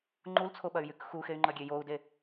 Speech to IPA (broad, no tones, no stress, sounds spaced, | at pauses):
ŋ͡ǃ u l t͡sʰ o ɓ ɐ y̯ j y k x u x e y̯ ŋ͡ǃ ɐ ɡʲ e j o u̯ d e